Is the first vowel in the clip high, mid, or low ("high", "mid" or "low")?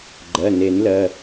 mid